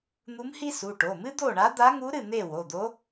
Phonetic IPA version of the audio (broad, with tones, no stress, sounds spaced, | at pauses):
n̪ u˧˥ m h i˥ s u˩˧˩ ʈ o˩˧˩ m ɨ˥ d̪ o˥˨ ɳ a˧˥ d̪ a˧˥ ŋ u˧˥ ɾ ɨ˥˨ n̪ e˥˨ w o˩˧˩ d̪ o˧˥